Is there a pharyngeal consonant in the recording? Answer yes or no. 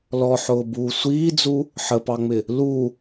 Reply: yes